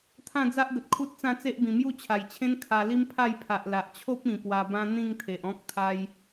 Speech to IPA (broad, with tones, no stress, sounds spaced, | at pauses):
t̪ʰ ã˥˧ d͡z a˦ ʔ ɡ ə˨ t̚ kʰ u˦ t̚ t͡s ã˥˧ t͡s e˦ ʔ b ĩ˨˩ m j u˥˧ t͡ɕʰ a˨˩ j t͡ɕʰ ẽ˦ n kʰ a˧ l i˦ m pʰ a˥˧ j pʰ a˨ ʔ l a˨ ʔ t͡ɕʰ o˦ p̚ ĩ˨˩ p w a˧ b ã˦ n̪ ĩ˥˧ ŋ t̪ʰ e˨ ʔ ɔ̃˦ k̚ t̪ʰ a˦ j